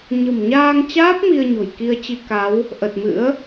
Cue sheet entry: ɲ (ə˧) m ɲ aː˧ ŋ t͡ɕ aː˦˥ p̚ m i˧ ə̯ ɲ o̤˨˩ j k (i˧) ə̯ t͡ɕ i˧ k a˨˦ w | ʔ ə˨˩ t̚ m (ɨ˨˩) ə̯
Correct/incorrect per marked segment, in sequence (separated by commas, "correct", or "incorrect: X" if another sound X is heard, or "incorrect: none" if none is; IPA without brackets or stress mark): incorrect: ə̤˨˩, correct, incorrect: ɨ̰˧˥